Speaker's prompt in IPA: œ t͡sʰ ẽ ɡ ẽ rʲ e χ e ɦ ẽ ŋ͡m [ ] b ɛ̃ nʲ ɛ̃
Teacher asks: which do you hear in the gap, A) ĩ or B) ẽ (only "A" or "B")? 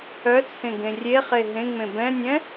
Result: B